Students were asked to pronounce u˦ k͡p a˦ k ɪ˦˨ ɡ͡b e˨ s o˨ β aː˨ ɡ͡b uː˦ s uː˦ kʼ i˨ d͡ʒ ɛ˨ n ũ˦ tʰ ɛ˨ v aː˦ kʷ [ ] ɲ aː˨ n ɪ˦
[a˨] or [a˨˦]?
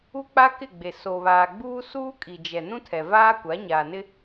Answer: a˨˦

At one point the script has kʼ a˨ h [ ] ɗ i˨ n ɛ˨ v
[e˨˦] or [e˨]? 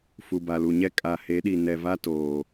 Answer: e˨˦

